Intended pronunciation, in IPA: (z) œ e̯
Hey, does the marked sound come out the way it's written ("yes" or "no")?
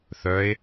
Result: no